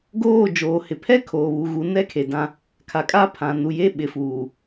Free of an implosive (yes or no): no